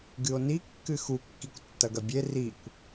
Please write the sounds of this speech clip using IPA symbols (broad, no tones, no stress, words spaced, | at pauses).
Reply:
ɡɨo̯ni kːɨxu kːikʷtːɐɡɐbʲe rikʷ